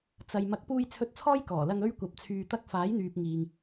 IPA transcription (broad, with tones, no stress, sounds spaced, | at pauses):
t͡s ɐ˨ j m ɐ˨˥ k̚ p uː˧ j t͡sʰ ɵ˧ t̚ t͡sʰ ɔː˥ j k ɔː˨˩ l ɐ˧ ŋ ɵ˥ ɥ kʷ ɐ˨˥ p̚ t͡sʰ yː˧ t̪ ɐ˥ k̚ f aː˨˥ j n̪ yː˨ p̚ ŋ iː˨ ŋ